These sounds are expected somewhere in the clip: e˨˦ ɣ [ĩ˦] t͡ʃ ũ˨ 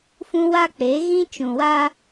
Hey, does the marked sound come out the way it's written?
yes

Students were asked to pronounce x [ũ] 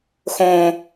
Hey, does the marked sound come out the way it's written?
no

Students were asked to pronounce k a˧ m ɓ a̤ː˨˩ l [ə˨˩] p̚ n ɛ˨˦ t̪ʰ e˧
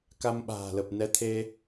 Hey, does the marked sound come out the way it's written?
yes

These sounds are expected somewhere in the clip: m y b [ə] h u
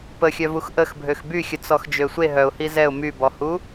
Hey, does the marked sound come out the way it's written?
no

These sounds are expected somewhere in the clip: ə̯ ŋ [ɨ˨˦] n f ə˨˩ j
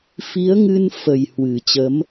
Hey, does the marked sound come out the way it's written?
no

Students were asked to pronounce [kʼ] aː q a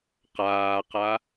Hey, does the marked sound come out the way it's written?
no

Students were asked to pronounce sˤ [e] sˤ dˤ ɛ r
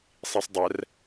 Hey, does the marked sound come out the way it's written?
no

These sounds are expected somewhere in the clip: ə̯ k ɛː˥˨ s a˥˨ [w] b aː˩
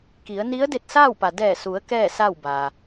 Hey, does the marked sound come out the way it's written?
yes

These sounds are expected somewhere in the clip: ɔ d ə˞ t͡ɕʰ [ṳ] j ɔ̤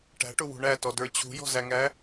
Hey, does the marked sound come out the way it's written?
yes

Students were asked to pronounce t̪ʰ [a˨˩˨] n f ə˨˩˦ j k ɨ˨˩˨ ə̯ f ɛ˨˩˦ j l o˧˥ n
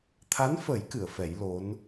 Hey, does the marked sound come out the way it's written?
no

